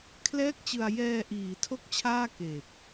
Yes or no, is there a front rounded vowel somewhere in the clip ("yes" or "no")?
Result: no